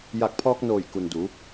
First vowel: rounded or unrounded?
unrounded